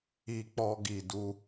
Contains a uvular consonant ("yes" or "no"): no